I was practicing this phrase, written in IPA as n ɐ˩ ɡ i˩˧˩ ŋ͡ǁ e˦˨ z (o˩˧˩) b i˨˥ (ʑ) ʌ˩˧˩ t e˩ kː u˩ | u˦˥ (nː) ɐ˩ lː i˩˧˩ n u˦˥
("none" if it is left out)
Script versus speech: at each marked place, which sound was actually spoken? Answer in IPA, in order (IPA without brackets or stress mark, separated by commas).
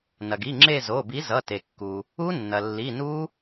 o˩˧˩, z, nː